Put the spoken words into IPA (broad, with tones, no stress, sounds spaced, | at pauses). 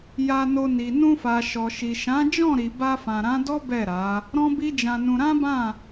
j a˧ n o˧ n i˨ n ũ˧ f a˨ ʃ ɔ˨ ʃ i˨ ʃ ã˨˦ d͡ʒ ɔ̃˦˨ ɾ i˨ b a˧ f ã˨ ɾ ã˨˦ d ɔ˦ b ɛ˦˨ ɾ a˨˦ | ɾ ɔ̃˦ b i˦ d͡ʒ ã˧ n ũ˧ ɾ ã˦ b ã˦˨